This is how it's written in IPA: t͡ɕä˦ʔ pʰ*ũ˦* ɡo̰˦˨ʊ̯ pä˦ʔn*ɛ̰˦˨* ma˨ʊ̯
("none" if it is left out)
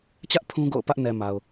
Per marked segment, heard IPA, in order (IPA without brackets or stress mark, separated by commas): ũ˦, ɛ˨